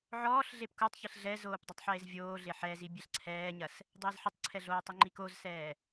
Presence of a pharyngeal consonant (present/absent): present